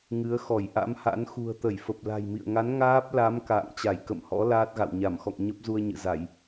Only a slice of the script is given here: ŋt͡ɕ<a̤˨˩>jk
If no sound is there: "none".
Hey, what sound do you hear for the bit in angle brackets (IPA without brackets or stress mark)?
a˧˩